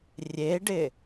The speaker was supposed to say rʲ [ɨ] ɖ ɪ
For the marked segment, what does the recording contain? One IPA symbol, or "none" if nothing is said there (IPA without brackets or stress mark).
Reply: e